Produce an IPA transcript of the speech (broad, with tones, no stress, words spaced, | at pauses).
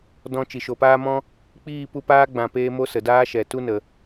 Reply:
dɔ̃˧ t͡ʃi˨ʃo˨paː˦mɔ̃˦ | k͡piː˦˨pu˧paː˦ ɡ͡bã˧peː˦ mo˦sə˨daː˦ʃɛ˨ tu˧nə˨